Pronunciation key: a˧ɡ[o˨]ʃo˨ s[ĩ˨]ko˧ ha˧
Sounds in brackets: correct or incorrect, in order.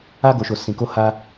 correct, correct

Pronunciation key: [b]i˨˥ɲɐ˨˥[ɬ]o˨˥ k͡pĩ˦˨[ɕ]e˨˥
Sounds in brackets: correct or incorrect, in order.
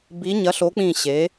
correct, correct, correct

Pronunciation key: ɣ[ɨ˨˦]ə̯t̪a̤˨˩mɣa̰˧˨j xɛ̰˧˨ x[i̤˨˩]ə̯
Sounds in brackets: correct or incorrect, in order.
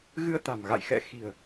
incorrect, correct

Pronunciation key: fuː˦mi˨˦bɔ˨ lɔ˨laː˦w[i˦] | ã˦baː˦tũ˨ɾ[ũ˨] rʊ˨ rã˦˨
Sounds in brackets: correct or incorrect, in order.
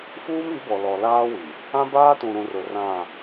incorrect, correct

